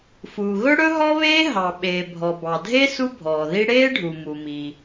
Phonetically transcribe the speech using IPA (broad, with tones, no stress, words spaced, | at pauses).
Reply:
fuː˩ɣɵ˥ ɽɵ˥ɦɔ˥βeː˥ ɦɑ˩ ɓeː˩bʱɔ˩bɑ˩dʱe˥ su˥bʱɔː˩ði˥ ɽeː˥ɖʱu˩mu˩mi˩